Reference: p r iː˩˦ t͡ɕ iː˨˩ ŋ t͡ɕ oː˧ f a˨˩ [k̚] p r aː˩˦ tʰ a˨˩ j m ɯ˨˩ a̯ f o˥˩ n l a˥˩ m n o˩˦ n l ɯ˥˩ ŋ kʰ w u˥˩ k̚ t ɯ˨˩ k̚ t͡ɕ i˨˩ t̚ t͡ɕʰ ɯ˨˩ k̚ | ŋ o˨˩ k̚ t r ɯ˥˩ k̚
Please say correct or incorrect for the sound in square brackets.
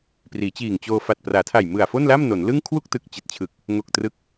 incorrect